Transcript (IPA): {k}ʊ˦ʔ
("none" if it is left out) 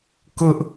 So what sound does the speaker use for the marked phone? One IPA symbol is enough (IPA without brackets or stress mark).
k